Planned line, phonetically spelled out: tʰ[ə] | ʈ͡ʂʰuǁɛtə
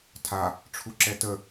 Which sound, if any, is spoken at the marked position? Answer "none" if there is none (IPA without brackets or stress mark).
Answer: a